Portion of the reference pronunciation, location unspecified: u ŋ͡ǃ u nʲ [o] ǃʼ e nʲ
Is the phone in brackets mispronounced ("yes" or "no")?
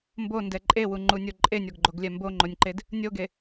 no